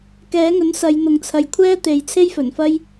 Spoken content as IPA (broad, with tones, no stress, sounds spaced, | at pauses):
k ɛː˨˥ ŋ ɵ˨˥ n s ɐ˨˧ j n̪ ʊ˨ ŋ t͡sʰ ɐ˨ j kʷʰ ɛː˥ t̪ e˨˧ j t͡sʰ e˥ j f ɵ˨˩ n f ɐ˥ j